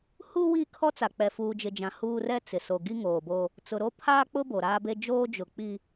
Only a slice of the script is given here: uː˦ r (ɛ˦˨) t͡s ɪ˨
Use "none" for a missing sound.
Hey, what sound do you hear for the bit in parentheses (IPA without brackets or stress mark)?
ɛ˦